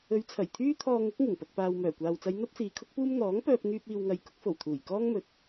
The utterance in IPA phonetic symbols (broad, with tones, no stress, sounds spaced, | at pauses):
ɵ˨˧ ɥ t͡sʰ ɐ˨˩ j t̪ʰ yː˥ t̪ʰ ɔː˧ ŋ ʊ˨˥ k̚ ŋ ɪ˨˩ ŋ p ɐ˨ k̚ p aː˨ w m œː˨˩ kʷ aː˨ w t͡s ɐ˨˧ j n̪ ɐ˥ p̚ s iː˨ kʰ ʊ˥ k̚ p uː˥ m n̪ ɔː˨˥ ŋ p œː˧ p̚ ŋ yː˧ p̚ iː˨ w ŋ ɐ˨ j k ʊ˨˥ k̚ f o˨˩ w t̪ʰ uː˨˩ j k ɔː˥ ŋ m ɵ˧ t̚